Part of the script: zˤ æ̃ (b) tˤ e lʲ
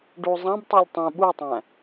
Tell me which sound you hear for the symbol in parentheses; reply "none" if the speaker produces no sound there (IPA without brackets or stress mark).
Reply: b